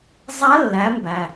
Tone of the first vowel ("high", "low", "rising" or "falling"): rising